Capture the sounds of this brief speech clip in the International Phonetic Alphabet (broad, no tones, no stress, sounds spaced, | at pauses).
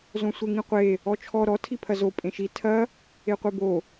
z õ sʷ e ŋ ĩ qʷ e | ɔ t͡ʃʰ ɔ ɾ ɔ tʰ i pʰ ɐ z o pʼ ẽ ʃ i tʰ ɐ | e qʷ e b o